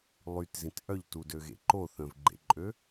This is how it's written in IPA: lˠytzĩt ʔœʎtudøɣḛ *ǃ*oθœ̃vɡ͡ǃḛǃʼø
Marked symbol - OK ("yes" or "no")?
yes